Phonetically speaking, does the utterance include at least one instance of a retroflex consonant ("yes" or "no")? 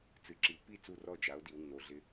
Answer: no